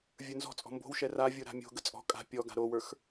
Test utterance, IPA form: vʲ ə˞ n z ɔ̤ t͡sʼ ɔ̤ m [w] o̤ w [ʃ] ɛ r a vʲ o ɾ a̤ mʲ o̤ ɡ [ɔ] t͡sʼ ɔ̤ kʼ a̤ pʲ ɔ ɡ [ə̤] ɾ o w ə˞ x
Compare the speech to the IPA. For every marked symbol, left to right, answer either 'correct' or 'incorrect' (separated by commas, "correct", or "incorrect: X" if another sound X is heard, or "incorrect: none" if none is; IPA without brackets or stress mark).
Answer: incorrect: b, correct, incorrect: ə, incorrect: a̤